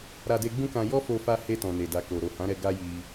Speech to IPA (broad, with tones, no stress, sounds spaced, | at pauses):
ɾ a˧ d e˧ ɡ͡b ũ˦ k ã˧ j ɔ˦ f o˧ f a˧ h e˧ t ɔ̃˨ n e˨ d a˨ k o˨ ɾ o˨ h ã˨˦ ɾ ɛ˧ ɡ a˦ j i˧